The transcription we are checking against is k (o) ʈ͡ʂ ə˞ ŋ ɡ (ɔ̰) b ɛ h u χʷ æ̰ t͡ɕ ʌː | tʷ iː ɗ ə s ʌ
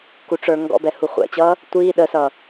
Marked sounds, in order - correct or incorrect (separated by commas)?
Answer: incorrect, correct